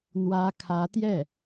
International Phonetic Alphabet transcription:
n̪ w ä˥ kʰ ä˧˥ t̪ j ɛ˥˩

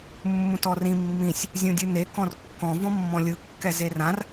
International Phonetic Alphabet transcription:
mː ũ t ɔ r ĩ mː ĩ sʲ | zʲ ũ dʲ ɯ n e k ɔ̃ r kː ɔ̃ v ɔ̃ mː ɔ̃ lʲ ɯ kː ɛ z e r ã r

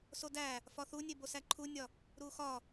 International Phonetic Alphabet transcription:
s o d æ | f ɒ θ u nʲ e b o s æ ǃʰ u nʲ ɒ | ɾ u x ɒ

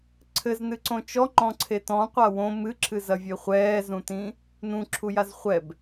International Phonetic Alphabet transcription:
ǀʰ ɘ z n ɨ ǀ õ t͡ʃ ɔ ŋ͡ǃ ɔ̃ ǀʰ e t ɔ̃ qʷ a w õ m ɨ ǁʰ ɨ z ɐ vʲ e χʷ ɛː z ũ t ĩ | n ũ ǁʰ u j a z χʷ ɛ b

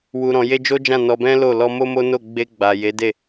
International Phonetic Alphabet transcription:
w u˨ ɾ ɔ̃˨ j e˧ d͡ʒ o˦ d͡ʒ ã˦˨ n ɔ˧ b ɛ̃˦ l o˦˨ l ɔ˧ m o˦ m o˦ n o˦˨ ɡ͡b e˧ ɡ͡b a˨ j e˨˦ d e˦˨

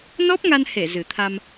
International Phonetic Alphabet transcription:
n ɔ˦˥ p̚ ŋ a˧ n h e˧˩ z ɨ˨˩ t̪ʰ a˧ m

